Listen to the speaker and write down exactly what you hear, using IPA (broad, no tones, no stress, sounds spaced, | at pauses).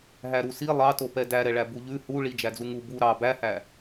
ɦ æ ɾ u s i lˠ ɑ t o p ɛ d æ ɾ ɛ ɭ æ b u ʎ ʉ h u ɭ i d͡ʒ æ d͡z u ŋ u b u ɾ ɑ b æ h æ